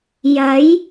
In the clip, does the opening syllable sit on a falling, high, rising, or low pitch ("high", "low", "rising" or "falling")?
rising